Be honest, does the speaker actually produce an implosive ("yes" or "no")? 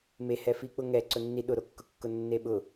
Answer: yes